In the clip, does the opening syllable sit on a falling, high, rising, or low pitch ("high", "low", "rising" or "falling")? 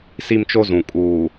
high